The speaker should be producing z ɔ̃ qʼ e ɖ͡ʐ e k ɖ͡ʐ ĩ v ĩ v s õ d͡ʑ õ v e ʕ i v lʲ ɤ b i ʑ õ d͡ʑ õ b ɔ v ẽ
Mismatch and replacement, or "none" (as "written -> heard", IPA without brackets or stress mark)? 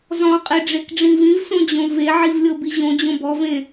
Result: none